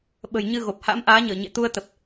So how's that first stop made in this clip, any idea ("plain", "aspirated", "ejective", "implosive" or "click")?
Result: implosive